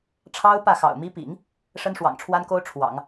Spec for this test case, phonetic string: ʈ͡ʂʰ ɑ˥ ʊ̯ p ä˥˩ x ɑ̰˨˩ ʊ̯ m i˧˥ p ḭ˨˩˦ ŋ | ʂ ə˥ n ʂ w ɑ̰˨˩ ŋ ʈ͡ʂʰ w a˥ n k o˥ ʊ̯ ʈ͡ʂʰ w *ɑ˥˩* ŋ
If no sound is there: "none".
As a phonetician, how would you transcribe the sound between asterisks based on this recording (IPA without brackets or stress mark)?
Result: ɑ̰˨˩˦